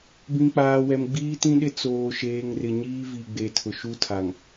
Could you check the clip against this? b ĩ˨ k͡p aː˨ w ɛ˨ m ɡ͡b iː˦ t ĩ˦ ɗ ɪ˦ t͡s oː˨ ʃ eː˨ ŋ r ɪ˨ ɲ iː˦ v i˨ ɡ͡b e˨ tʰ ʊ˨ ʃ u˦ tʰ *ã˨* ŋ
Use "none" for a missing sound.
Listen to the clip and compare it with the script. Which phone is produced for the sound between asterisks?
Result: a˨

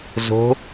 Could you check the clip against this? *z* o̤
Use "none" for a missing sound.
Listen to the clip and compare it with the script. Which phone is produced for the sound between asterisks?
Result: z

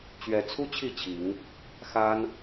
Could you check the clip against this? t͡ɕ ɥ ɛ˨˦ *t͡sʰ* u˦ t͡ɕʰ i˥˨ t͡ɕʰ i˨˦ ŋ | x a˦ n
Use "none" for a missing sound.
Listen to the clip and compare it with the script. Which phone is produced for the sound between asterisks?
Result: t͡sʰ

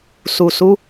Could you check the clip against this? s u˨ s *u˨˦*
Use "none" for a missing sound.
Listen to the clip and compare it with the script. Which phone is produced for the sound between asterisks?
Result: u˨˦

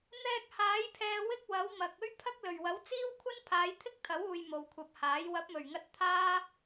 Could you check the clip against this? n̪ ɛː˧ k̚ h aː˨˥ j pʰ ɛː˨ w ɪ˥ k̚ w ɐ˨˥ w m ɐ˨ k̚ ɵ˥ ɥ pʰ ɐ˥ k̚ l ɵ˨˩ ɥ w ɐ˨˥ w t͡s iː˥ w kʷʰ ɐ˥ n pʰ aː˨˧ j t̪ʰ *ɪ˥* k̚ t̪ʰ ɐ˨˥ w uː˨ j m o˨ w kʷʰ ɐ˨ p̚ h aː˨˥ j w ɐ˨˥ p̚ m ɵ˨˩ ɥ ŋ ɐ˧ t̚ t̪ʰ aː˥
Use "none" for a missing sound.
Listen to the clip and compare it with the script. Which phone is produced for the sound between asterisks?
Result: ɪ˥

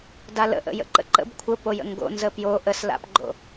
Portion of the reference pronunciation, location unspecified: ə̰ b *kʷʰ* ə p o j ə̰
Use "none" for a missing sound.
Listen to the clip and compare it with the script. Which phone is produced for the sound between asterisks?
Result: kʷʰ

